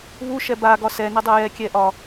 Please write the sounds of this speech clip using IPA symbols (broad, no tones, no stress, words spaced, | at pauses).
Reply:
βu ʃɛba ɡɒsɛnɛdˤɛ jɛkʲɛʔɒ